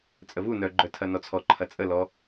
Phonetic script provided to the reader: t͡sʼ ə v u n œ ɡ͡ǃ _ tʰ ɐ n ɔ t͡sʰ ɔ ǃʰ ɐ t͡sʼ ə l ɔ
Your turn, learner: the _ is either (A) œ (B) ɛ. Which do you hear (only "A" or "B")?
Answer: A